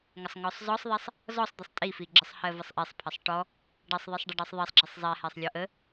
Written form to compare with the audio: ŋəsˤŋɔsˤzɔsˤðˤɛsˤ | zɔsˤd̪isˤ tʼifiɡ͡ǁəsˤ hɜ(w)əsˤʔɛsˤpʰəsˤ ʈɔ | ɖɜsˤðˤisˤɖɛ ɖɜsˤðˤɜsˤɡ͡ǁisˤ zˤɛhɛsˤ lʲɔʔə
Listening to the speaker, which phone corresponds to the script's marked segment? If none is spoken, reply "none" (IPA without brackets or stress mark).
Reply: v